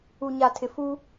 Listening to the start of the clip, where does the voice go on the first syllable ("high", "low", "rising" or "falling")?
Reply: low